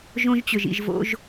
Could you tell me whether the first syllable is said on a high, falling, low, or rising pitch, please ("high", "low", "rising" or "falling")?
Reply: high